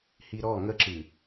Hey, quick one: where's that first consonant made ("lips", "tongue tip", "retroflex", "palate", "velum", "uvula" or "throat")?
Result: throat